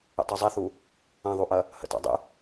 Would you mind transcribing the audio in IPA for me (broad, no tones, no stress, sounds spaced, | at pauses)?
ə̰ tˤ o zˤ ɛ θ u | ɐ̃ ðˤ u ʔ ɐ | h ə̰ t ɑ̰ dˤ ə̰